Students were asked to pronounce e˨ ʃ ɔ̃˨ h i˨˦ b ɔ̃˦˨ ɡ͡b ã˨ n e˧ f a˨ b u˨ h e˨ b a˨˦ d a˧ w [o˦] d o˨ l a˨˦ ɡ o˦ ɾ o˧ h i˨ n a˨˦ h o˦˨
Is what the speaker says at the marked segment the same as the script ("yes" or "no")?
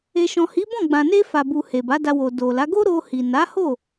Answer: no